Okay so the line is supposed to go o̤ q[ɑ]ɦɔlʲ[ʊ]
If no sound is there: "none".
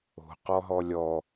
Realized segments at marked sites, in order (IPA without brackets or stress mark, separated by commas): ɔ, ɔ